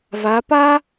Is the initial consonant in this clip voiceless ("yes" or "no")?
no